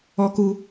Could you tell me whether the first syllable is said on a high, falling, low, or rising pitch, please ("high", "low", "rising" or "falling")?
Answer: high